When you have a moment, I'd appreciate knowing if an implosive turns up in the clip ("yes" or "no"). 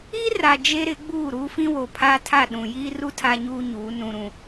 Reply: yes